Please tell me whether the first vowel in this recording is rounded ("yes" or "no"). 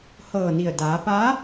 no